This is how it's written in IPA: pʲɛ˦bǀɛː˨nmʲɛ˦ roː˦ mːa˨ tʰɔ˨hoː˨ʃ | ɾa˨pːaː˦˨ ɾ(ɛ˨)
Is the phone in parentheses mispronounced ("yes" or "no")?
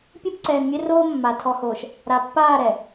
no